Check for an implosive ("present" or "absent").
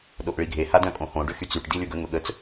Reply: present